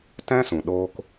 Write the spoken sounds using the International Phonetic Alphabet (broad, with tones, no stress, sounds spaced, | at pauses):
t ɛ̃˦ s ũ˨ ɗ oː˦ k